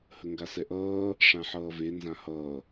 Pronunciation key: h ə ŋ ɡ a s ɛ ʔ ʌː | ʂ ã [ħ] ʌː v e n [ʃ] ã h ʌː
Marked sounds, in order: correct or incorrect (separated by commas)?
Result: correct, incorrect